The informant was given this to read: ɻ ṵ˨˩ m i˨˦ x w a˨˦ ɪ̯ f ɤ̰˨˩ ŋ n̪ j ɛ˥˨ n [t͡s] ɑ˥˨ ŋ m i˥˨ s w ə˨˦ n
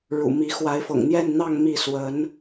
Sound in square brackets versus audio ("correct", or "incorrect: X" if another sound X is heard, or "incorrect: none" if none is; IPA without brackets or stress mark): incorrect: n̪